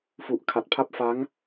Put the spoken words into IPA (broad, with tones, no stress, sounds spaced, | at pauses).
f u˨˩ ʔ kʰ a˨˩ t̚ pʰ a˦˥ p̚ f a˦˥ ŋ